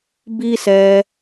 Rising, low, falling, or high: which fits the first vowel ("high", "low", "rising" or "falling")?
high